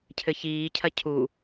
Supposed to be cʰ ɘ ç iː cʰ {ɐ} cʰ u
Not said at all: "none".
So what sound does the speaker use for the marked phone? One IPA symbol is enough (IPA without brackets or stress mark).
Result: ɐ